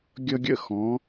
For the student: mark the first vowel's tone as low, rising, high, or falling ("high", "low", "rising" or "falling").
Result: high